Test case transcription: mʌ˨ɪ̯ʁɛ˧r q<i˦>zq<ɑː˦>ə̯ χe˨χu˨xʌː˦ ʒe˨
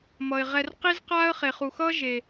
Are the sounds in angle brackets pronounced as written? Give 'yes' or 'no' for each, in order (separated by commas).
yes, no